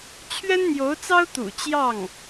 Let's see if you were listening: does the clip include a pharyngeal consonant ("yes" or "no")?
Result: no